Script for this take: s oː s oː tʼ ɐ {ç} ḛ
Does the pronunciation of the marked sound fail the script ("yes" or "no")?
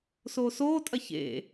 no